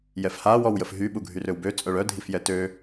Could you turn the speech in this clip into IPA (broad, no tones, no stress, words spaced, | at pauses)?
jɛfha wɔwjəfɦy ɓuɡʱyrøwbø t͡sʼœɭœdʱifjɛ tø